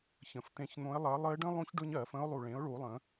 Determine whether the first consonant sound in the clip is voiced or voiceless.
voiceless